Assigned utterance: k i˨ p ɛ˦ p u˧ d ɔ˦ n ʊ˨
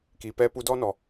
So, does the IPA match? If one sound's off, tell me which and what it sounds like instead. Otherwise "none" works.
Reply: ʊ˨ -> ɔ˨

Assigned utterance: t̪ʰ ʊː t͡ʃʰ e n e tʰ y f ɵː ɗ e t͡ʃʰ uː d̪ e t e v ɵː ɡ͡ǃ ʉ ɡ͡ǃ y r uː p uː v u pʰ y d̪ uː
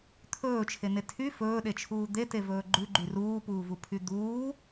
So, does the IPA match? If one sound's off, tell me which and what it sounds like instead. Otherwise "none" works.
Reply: ʊː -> ɵː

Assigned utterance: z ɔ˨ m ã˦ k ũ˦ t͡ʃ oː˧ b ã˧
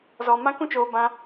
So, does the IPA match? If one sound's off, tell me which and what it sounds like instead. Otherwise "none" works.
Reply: none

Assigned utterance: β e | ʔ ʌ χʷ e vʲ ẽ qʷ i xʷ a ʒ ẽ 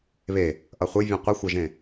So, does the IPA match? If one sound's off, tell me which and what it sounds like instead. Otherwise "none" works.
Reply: none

